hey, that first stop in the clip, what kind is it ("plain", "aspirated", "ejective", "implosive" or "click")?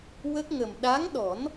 plain